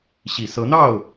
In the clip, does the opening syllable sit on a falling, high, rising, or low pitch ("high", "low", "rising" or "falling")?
low